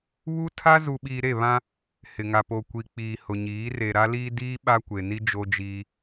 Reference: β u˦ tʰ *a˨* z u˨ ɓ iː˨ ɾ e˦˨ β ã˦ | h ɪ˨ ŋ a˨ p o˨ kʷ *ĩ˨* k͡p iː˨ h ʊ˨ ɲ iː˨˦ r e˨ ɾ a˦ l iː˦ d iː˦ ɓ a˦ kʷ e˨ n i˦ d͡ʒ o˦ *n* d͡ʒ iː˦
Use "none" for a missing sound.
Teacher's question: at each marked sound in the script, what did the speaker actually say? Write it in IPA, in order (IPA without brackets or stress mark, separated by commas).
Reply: a˦, i˨, none